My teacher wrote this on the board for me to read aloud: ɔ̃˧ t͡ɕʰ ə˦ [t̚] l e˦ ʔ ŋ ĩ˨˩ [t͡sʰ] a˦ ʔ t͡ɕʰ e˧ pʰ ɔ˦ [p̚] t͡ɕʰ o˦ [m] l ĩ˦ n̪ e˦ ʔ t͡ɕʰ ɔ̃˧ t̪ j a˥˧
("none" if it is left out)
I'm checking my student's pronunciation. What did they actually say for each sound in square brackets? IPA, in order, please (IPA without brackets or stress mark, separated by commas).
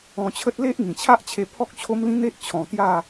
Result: t̚, t͡ɕʰ, k̚, m